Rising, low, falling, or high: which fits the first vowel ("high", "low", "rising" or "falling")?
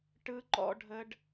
high